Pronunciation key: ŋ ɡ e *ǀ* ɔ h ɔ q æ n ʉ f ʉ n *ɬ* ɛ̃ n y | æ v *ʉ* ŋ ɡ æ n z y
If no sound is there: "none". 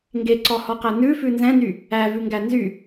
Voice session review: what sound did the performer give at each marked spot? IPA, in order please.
ǀ, z, ʉ

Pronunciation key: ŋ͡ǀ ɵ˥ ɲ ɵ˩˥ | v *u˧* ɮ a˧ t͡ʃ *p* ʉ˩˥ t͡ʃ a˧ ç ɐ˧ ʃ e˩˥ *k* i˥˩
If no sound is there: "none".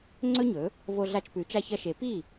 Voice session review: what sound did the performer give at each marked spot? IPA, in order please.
o˧, p, p

